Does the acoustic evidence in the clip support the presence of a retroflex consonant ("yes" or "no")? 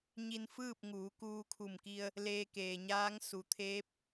no